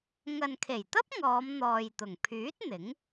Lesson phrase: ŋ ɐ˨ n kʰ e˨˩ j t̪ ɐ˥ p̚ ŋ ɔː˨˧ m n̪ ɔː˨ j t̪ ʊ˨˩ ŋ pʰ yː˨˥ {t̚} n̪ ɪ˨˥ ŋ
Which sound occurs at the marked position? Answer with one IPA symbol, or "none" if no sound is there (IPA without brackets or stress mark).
t̚